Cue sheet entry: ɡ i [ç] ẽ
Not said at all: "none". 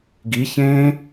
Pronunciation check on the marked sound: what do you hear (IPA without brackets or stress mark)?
ç